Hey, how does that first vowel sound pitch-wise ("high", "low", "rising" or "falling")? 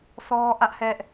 high